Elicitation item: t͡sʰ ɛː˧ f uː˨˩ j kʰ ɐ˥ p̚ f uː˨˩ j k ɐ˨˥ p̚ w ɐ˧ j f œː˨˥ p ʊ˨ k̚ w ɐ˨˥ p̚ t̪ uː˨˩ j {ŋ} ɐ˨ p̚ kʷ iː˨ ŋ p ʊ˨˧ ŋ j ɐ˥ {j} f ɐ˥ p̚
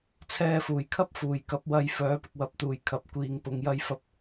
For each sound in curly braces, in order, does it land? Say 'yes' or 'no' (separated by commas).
no, yes